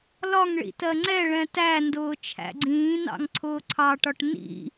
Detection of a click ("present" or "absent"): present